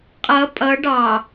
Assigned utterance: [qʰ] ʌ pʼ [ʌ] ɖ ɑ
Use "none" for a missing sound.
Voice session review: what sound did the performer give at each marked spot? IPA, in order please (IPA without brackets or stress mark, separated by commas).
qʼ, ʌ